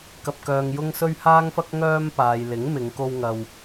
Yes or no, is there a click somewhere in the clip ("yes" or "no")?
no